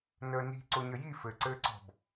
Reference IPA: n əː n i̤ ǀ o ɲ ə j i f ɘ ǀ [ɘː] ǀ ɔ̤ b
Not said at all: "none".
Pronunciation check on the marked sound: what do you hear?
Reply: ɘː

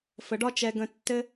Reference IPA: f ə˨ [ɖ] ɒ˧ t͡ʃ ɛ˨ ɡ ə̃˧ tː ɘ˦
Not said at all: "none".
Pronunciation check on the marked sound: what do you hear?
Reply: ɖ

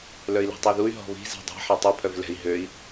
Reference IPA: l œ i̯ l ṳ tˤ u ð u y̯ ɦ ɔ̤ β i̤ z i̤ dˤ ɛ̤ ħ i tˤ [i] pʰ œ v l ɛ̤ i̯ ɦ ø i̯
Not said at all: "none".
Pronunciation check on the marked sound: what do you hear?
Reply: ɪ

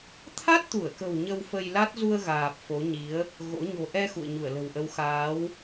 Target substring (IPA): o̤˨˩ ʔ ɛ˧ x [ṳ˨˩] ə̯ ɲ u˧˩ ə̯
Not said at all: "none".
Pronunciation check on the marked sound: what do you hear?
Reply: ṵ˧˨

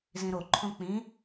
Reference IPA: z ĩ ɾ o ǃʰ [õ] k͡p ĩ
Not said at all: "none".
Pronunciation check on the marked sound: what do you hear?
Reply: õ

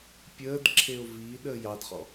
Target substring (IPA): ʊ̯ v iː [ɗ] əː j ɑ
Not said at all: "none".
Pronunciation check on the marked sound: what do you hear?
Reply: ɗ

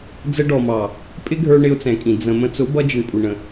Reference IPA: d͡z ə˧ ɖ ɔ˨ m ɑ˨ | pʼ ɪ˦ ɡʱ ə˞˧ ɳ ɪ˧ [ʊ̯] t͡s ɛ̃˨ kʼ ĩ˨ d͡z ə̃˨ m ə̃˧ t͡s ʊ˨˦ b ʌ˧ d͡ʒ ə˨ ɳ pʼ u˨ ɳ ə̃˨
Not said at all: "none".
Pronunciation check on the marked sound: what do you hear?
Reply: ʊ̯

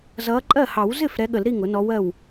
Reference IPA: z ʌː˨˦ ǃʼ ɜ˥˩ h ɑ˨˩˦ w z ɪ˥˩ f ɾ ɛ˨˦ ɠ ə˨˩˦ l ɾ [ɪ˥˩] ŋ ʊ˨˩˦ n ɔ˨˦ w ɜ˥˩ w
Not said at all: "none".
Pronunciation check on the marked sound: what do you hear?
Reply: i˥˩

